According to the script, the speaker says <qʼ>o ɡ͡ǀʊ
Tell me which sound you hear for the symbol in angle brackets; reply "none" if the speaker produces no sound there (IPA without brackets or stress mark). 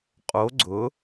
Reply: qʼ